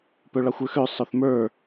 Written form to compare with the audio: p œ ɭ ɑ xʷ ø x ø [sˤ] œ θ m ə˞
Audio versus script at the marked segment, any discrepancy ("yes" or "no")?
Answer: no